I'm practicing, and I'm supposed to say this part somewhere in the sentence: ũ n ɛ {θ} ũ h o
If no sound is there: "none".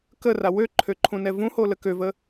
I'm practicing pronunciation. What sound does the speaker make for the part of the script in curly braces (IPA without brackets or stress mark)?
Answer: v